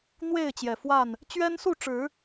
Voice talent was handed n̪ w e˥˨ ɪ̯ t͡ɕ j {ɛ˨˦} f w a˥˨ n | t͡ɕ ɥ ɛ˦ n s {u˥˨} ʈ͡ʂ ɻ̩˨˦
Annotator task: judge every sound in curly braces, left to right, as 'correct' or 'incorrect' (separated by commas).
incorrect, correct